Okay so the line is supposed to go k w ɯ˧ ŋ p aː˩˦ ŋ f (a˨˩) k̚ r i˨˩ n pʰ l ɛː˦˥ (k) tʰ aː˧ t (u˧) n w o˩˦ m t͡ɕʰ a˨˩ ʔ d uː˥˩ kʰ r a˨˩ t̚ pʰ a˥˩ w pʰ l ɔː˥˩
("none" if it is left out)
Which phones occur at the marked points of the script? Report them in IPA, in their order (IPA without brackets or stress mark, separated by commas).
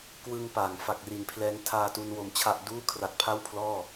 a˨˩, ŋ, u˧